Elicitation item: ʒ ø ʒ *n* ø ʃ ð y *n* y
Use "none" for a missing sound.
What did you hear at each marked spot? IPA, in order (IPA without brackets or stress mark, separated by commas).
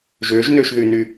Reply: n, n